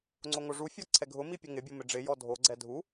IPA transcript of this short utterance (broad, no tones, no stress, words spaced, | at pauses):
ŋ͡ǀoŋoʐufʲɔ ǀʰɛɡʱʊmi pʲʊŋɪbʲo mɪɖ͡ʐɪjɔ dʱoɡ͡ǀɛ dʱu